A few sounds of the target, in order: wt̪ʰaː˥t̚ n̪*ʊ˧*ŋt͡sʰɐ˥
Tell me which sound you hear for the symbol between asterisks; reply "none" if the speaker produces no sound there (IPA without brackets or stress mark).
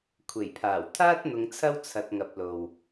ʊ˧